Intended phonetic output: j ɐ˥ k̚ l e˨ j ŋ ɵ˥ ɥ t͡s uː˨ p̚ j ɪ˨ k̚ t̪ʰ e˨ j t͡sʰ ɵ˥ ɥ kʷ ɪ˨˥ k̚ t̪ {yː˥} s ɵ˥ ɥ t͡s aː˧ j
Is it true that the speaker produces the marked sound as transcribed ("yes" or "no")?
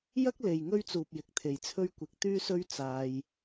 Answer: yes